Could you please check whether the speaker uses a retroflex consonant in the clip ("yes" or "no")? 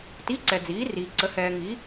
no